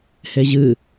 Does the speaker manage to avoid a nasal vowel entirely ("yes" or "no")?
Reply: yes